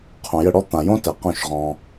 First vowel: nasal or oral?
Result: nasal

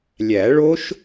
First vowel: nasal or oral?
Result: oral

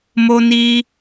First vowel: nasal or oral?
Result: oral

